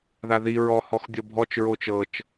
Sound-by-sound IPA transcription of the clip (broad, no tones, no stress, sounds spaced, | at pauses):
ð a ð i ɹ ɔ h ɔ x dʲ ɔ bʱ ɔ t͡ʃ ɹ o t͡ʃ ɤ t͡ʃ